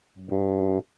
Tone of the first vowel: low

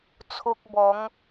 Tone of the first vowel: high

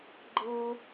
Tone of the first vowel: high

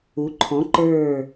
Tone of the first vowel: rising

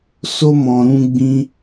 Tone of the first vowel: high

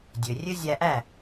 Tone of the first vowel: low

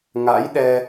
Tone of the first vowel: rising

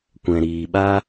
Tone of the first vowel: low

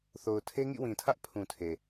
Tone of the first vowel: low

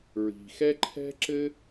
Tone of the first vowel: low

